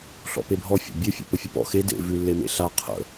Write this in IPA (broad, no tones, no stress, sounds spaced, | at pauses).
ɬ ɔ̰ p e bʱ ɔ fʲ a̰ bʲ e fʲ ḛ p ə fʲ ə p ɔ̰ x e d ḛ v ʉ lː e m ḛ ɬ a qʰ ə̰